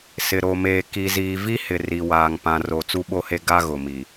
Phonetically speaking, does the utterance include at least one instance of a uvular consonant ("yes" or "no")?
no